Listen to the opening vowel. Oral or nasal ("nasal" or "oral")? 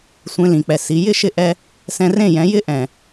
nasal